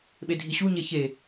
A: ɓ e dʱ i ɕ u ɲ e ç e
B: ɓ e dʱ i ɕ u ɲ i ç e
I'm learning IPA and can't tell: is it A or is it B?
A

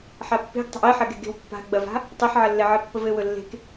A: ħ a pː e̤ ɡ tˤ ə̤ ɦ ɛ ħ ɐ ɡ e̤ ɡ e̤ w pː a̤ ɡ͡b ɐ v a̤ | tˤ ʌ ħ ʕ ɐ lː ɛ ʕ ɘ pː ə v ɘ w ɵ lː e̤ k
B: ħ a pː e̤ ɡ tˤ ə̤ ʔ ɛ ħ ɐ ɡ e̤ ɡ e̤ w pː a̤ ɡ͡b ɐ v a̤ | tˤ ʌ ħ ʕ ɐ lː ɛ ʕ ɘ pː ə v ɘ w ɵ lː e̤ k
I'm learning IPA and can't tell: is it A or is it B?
B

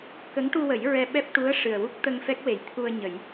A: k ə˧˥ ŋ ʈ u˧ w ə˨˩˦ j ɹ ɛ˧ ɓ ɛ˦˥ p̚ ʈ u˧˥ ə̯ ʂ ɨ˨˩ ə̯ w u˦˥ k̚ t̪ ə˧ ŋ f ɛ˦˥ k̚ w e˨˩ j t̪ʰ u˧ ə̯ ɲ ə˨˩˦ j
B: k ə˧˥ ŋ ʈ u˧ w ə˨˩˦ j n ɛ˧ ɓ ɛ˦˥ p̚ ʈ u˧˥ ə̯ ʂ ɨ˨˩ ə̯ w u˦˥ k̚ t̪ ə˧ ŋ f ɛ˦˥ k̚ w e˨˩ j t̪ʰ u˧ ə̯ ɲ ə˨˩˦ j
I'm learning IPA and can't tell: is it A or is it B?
A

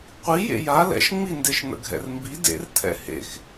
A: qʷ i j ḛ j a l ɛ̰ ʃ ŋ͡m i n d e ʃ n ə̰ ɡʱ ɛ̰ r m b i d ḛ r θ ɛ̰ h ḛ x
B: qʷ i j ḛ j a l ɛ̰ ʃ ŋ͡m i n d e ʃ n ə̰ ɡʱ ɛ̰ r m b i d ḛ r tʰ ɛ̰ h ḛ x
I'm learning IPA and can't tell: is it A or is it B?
B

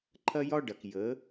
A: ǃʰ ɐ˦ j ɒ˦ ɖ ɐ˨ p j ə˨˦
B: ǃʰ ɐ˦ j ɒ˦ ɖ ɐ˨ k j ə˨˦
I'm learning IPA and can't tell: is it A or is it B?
B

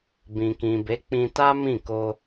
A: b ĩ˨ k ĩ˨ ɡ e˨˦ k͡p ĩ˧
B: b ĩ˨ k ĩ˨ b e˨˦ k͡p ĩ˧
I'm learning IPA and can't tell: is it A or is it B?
B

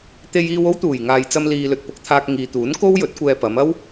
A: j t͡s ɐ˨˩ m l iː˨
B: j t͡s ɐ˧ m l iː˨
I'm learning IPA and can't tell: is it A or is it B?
B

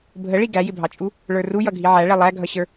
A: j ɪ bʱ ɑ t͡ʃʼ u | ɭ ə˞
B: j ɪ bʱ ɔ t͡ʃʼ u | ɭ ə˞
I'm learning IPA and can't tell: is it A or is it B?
A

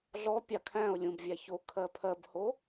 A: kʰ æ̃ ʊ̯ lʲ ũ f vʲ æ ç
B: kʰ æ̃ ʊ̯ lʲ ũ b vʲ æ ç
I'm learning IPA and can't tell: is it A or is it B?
B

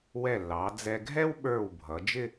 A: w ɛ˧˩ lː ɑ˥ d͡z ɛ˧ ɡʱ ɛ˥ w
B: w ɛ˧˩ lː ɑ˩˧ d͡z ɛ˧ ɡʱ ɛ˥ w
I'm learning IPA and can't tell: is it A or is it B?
B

